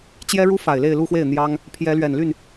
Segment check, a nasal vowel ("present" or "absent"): absent